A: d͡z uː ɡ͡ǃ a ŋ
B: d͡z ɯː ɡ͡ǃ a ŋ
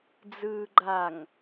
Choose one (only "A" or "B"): B